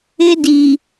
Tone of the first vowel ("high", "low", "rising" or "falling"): high